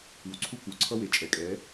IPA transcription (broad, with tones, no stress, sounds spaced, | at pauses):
ɯ˨ w ǀʰ u˦ k u˨ ǀʰ ʌ˦ w e˨ t͡ʃʼ ɛ˨ kʼ ɛ˨˦